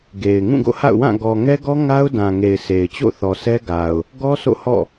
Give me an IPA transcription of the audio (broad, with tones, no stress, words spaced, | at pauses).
ɡe˨ɪ̯ ŋũ˦˨ɡo̰˦˨ha̰˦˨ʊ̯wã˦˨ ɡɔ˨ ŋɛ˦ɡɔ˦ ŋa˦ʊ̯dã˨ŋe˨ɪ̯ sʰe˨ɪ̯ t͡ɕo̰˦˨θɔ˨sɛ˦ɡa˨ʊ̯ | ɡɔ˦ sʰo̰˦˨hɔ̰˦˨